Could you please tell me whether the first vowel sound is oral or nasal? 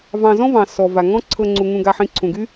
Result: nasal